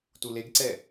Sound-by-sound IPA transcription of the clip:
t u l e ɡ ǀ ɛ

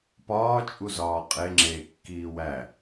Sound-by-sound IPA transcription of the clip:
p ɒː t͡ʃʼ u z ɒː qʼ e ŋ͡ǁ eː kː iː w æ

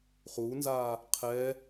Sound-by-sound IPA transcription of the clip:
χ u n z a | qʰ ɛ

